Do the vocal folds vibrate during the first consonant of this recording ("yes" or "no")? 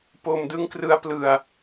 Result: no